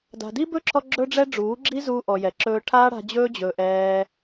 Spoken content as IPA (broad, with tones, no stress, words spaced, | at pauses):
da̤˨di˦bɵ˦ǁʰɔ˧ ɡ͡ǁɵ˧ɖ͡ʐɛ˧ ɖ͡ʐuː˨˦ɡ͡ǁi˦zuː˧ ʔɔ˨jɛ˨ǁɵː˧ ʈʰaː˦ɽa̤˧d͡ʑɵː˦ d͡ʑɵ˧ʔɛː˦